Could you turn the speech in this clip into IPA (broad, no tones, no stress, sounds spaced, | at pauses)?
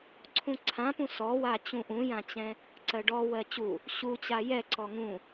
ǀʰ ũ ǀʰ ã p ũ s ɔ w a t͡ɕ ũ ʔ ũ j ã t͡ɕ ɛ̃ | ǀ ɜ ɖ ɔ w ɜ t͡ɕ u | ɕ u t͡ɕ a j ɛ ǀ ɔ ŋ ũ